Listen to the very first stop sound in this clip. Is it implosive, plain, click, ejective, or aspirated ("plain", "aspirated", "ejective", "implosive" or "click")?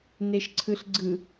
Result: click